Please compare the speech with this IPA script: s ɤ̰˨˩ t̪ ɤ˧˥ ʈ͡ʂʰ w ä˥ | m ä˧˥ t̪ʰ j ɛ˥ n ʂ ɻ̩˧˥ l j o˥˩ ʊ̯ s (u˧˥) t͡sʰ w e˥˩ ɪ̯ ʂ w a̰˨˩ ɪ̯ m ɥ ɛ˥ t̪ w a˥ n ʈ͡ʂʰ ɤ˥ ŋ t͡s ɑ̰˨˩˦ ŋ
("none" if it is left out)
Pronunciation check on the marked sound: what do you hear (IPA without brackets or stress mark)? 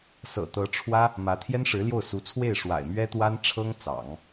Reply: u˧˥